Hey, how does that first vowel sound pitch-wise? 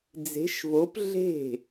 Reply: rising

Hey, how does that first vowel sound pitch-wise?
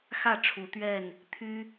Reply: falling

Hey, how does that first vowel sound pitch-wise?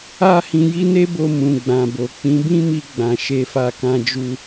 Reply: high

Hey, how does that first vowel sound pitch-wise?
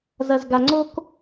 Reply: low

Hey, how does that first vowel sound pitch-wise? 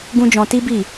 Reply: high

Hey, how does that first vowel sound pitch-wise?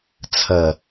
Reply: low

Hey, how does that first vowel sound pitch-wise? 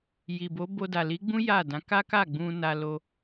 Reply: low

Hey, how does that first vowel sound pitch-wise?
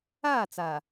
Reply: falling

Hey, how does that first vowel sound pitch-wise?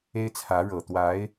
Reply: high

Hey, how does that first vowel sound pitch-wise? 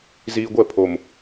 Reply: low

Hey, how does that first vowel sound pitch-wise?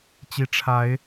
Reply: low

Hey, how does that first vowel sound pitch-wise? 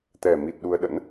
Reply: low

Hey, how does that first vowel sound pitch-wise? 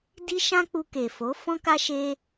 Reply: high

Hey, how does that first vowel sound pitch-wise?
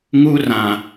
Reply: high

